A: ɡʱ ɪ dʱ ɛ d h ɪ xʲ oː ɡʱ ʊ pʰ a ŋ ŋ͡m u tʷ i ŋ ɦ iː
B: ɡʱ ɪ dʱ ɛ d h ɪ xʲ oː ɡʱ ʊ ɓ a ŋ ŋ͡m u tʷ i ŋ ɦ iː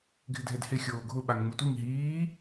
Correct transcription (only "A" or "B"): B